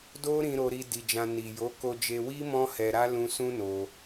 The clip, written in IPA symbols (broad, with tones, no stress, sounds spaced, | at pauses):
d o˦ ɾ ĩ˧ ɾ o˧ ɾ i˧ d i˧ d͡ʒ ã˧ n i˨ j o˨˦ k o˧ d͡ʒ e˧ w i˦ m ɔ̃˦ h ɛ˧ ɾ a˦ l ũ˧ s ũ˦ n o˧